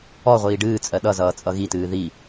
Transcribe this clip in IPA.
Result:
ɔ ʁʷ iː ɖ ɨː t͡sʼ ɜ ɗ ʌ z ʌː t͡sʼ ʌ ɣ i t ɨː ð i

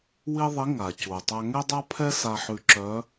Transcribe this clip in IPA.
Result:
w i˥ ðˤ i˧˥ ŋ a˩ c u˩ tˤ a˧ ŋ ɛ˥ dˤ a˥ pʰ ɛ˥ s a˧ ħ ʉ˧ ǁ œ˧˥

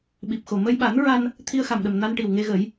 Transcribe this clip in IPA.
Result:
ɓ i˨˩ p̚ x o˨˩ m ə˧ j ɓ a˨˩˦ n ɹ a˧ n | t̪ʰ i˧ ə̯ x a˨˩ m ɗ ə˨˩ m n a˧ n ʈ i˨˩ w ŋ e˧ ɣ ə˨˩˦ j

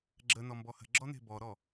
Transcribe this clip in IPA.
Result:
ɡ͡ǁ ə n ɔ m b ɔ h ə̤ ɡ͡ǁ ɔ n e̤ b ɔ ɾ ɔ

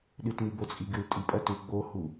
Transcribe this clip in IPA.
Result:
ɗ ɨ t m i b o t͡sʼ i ɡ ɨ l tʼ i pʼ ɐ t u ɡ͡b o h u

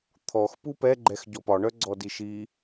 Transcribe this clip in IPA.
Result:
t̪ʰ ɔ x p u p ɛ ɡ͡ǃ ɛ x ɟ ɔ p ɒ ɳ œ ɡ͡ǀ ɔ d i ʃ i

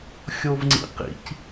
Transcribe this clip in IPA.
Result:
xʲ o v ŋ͡ǀ ḭ q ḭ c

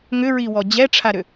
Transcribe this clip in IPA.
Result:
ŋ ʏ ɹ i w ɔ d͡ʑ ɛ ʈ͡ʂʰ a ɾ ʏ

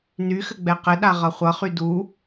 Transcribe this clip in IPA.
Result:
n y x ɘ ɡ͡b ɛ q ɘ ɗ a ʁ ʌ χʷ ʌ χ y d u

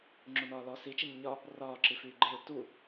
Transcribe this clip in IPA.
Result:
ŋ͡ǁ o n ɒː l ɔ s i t͡ʃ i ɲ ɘ ɲ ɒ | r ɒː ǁ i f yː ɡ͡ǃ e ɹ t u

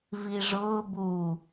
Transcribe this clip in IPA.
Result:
v i ʐ ʊː b u

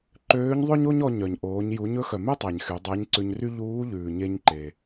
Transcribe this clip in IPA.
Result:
ǃ øː˧˥ ɲ ðˤ ø˥ ɲ o˥ ɲ ɔ˧ ɲ œ˩ ɲ ʔ oː˩˧ ɲ j u˩˧ ɲ ɵ˧˥ x œ˩ m e˥ tˤ æ˩ ɲ x y˩˧ dˤ æ˧˥ ɲ ǀ ʉ˧ ɲ r y˥ ʎ uː˧˥ ʎ ʉː˩ ɲ e˧ ɲ ǃ e˩

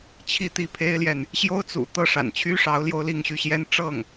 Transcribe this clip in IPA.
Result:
t͡ɕʰ i˥˧ t̪ i˥˩ pʰ e˥ ɪ̯ l j ɛ˨ n | ɕ j o˥ ʊ̯ t͡s ṵ˨˩ t̪ ɤ˥˩ ʂ a̰˨˩ n t͡ɕʰ y˥ ʂ ɑ˧˥ ʊ̯ l j o˥ ʊ̯ l i˥˧ ŋ ɕ y˥˩ ɕ j ɛ˥ n ʈ͡ʂ ɤ˥˩ ŋ

